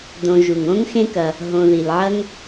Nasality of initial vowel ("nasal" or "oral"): nasal